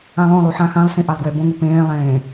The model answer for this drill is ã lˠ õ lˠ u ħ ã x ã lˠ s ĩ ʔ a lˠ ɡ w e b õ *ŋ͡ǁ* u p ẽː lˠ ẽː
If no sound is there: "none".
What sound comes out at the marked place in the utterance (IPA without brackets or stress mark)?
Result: ŋ